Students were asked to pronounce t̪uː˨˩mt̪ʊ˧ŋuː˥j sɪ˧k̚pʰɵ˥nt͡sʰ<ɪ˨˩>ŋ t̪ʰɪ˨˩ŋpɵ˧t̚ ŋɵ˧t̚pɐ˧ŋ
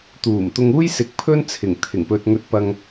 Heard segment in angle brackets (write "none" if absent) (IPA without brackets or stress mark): ɪ˨˩